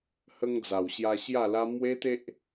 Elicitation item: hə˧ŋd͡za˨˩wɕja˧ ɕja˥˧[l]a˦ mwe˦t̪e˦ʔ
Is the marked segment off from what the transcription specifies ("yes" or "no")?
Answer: no